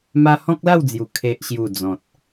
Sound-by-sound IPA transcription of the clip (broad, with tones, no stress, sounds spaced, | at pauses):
m a˦ h ɔ̃˦ k̚ l a˥˧ w d͡z j u˨˩ kʰ e˨ ʔ ɕ j u˨˩ d͡z ɔ̃˨ t̚